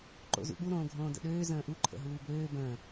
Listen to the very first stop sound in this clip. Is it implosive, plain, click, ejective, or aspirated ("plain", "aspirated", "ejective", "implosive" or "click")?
click